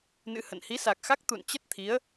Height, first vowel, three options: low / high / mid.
high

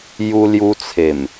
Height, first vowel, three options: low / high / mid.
high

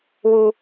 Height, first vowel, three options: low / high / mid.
high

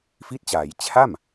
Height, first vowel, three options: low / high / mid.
high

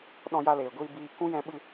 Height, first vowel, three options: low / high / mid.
mid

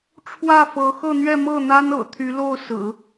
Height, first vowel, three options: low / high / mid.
low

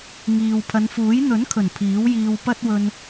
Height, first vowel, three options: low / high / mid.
high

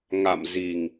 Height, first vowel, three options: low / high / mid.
low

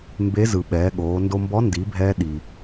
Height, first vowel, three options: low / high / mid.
mid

